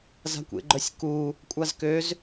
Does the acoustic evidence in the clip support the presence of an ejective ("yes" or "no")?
yes